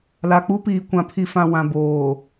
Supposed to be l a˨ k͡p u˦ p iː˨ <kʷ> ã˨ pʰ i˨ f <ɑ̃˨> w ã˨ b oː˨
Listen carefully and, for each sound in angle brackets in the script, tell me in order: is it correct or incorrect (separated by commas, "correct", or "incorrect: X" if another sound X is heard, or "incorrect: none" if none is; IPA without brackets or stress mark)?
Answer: correct, incorrect: ã˨